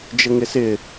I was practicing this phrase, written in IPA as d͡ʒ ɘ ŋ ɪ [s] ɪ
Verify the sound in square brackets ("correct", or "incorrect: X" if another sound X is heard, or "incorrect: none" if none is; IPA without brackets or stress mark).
correct